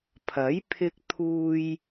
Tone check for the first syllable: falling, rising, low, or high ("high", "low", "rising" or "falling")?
rising